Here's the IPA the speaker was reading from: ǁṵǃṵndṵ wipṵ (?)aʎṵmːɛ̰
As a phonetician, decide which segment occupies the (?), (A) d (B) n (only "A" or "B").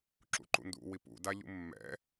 A